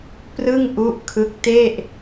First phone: p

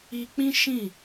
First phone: i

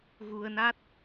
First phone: ɣ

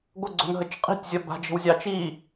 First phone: ɡʷ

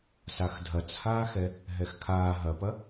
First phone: s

